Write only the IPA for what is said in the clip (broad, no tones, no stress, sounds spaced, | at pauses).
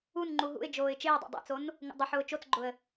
u n ŋ͡ǃ u ɦ ṵ ɪ̯ d͡ʒ oː ɪ̯ t͡ʃ ɪː dˤ ḛ dˤ ḛ t͡s o n | ŋ ṵ dˤ ʊ ħ ʊː t͡ʃ o t͡s ɡ͡ǃ ʊ ə̯